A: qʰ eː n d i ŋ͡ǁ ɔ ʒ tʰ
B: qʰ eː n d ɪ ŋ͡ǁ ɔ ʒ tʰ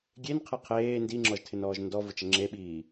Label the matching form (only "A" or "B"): A